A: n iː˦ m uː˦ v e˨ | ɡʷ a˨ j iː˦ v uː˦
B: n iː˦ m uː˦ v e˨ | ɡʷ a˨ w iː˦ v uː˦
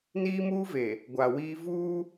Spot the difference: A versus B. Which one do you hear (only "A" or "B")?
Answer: B